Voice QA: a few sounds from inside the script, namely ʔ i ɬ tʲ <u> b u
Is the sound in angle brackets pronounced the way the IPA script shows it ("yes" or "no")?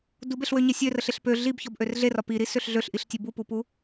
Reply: yes